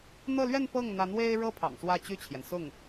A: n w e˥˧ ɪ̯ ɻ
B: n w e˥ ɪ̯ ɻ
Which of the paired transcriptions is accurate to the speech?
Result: B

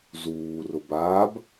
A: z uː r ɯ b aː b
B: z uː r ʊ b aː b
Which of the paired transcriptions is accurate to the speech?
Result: B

